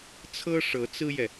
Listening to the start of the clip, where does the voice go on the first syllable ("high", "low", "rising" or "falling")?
high